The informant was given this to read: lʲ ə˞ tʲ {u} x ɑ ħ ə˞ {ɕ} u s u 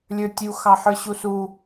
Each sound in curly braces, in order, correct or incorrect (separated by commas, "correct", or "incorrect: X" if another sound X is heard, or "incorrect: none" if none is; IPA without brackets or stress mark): correct, correct